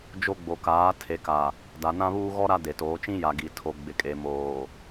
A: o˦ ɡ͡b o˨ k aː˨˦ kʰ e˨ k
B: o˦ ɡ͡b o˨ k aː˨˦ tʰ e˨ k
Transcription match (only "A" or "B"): B